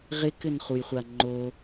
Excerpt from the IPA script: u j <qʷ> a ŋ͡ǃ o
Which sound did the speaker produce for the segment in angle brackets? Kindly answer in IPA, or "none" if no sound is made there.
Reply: χʷ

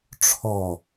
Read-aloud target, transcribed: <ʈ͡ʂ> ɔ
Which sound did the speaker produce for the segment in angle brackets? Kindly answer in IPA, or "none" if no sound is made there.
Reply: ʈ͡ʂʰ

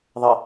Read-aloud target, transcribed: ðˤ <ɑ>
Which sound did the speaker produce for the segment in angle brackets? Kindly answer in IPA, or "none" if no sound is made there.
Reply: ə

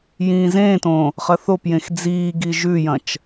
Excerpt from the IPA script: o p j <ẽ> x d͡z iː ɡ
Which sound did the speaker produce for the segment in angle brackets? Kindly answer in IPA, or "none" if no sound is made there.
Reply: ẽ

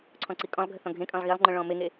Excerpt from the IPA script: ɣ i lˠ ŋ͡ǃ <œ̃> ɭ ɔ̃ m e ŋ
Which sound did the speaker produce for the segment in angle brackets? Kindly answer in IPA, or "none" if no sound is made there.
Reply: œ̃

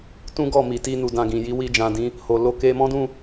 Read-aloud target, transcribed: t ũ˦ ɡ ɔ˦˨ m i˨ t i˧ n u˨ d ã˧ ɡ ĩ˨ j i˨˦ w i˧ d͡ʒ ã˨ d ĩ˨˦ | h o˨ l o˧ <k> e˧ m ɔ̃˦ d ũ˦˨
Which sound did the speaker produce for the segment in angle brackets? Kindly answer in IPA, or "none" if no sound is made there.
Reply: k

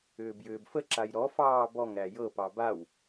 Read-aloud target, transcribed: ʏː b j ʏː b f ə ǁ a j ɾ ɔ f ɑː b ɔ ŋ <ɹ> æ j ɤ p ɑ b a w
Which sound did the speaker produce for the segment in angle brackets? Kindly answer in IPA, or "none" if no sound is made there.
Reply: ɾ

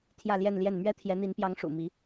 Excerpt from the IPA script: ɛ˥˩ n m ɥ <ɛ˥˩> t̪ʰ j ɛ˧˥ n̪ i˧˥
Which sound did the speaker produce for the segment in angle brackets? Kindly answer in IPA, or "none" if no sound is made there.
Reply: ɛ˥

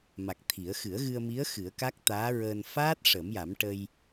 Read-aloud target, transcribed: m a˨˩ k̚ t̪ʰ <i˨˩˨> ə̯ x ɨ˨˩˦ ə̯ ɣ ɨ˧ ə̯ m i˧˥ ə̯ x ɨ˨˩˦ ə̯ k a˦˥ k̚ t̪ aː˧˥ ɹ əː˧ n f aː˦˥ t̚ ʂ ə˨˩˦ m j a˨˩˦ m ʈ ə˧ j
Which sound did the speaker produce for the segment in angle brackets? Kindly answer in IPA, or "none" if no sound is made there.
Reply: i˨˩˦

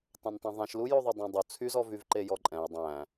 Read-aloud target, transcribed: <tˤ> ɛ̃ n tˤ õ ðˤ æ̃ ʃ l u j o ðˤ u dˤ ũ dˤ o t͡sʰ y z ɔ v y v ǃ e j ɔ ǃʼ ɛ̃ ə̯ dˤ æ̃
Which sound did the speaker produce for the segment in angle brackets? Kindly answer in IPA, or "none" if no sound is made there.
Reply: tˤ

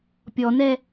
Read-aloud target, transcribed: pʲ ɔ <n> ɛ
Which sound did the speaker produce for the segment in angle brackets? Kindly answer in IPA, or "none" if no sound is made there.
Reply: n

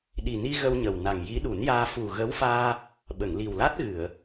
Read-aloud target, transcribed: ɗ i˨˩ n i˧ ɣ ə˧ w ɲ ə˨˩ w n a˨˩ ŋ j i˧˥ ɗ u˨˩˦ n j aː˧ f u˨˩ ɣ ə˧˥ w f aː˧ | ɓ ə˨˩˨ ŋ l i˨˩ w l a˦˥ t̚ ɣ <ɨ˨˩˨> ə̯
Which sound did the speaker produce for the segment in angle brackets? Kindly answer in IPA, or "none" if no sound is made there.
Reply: ɨ˨˩˨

